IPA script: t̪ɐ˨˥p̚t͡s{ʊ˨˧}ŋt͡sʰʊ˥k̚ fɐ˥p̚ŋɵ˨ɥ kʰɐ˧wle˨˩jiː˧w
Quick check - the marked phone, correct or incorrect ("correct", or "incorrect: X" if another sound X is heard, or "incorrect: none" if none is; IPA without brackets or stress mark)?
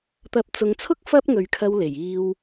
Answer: correct